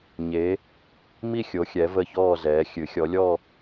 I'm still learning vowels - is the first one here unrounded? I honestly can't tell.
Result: yes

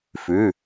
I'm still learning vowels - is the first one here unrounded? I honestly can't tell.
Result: no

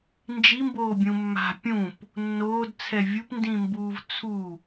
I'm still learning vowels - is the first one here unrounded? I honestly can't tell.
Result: yes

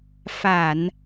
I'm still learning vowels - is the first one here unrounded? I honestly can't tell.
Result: yes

